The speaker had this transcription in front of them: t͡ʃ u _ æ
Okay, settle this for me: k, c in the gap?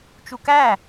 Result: k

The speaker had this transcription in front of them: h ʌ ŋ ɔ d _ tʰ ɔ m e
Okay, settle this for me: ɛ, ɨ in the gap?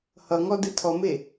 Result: ɨ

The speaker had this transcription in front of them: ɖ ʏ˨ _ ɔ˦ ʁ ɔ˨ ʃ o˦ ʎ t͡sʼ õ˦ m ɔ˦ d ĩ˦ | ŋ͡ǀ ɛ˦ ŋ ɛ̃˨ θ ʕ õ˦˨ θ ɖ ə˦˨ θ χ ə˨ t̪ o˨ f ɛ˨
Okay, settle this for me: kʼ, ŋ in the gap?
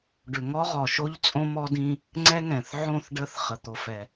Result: ŋ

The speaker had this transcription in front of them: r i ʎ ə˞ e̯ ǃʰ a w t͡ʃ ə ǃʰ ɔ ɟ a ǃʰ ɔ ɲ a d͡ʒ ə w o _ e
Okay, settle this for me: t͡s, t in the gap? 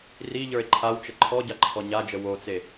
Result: t͡s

